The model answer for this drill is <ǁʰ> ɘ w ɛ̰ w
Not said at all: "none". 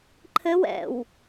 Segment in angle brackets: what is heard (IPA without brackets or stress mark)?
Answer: ǃʰ